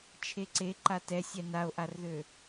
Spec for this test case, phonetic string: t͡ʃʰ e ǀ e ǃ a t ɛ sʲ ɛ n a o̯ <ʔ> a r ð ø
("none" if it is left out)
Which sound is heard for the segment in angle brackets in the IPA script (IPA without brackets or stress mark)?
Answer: ʔ